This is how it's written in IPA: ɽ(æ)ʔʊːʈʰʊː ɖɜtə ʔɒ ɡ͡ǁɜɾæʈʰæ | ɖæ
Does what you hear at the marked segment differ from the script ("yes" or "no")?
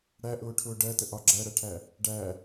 no